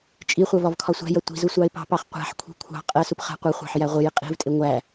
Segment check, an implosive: absent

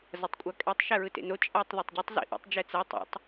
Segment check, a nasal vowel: absent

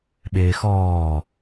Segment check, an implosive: present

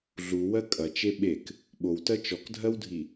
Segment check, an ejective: present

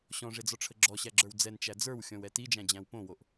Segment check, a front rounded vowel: absent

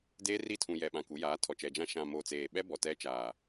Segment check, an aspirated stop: present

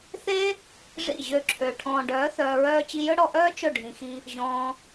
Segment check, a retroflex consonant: present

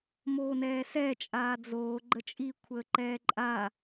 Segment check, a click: present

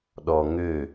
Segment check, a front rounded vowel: present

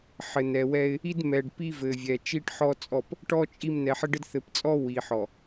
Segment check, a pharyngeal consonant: present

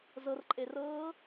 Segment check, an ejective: present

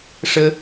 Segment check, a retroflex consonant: present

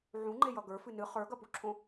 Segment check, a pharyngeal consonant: present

